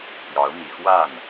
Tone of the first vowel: rising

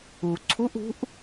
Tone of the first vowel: low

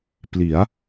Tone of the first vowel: rising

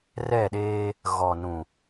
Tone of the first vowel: falling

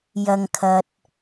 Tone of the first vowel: low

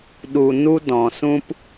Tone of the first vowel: low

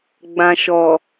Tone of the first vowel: low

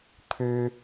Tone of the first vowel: high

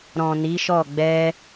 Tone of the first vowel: low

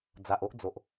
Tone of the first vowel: low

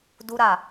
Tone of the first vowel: high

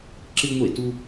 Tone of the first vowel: high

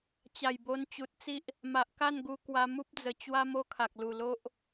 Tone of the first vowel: low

